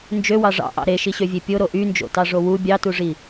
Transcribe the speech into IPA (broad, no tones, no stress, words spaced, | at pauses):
nd͡ʒøwɑ ʐɑ̰ʔɑ̰ ɾeʃiɕøvʲe pʲoɾo ʔynd͡ʒo̰tɑʐo wu bʲɑtuʐi